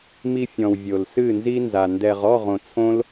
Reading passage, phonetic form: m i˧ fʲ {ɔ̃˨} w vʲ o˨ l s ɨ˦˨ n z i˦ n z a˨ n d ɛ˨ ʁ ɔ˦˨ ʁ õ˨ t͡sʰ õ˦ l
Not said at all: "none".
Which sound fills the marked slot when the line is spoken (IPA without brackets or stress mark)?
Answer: ɔ̃˨